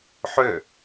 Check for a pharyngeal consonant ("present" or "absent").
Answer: present